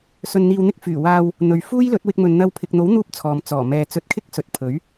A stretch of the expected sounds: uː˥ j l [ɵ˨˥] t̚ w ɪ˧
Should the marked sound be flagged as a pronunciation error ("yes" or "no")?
no